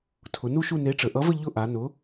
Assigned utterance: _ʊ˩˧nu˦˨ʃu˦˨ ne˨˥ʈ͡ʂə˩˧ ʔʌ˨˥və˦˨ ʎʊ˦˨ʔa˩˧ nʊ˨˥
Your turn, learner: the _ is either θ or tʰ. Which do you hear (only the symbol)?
tʰ